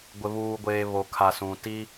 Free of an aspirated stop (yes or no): no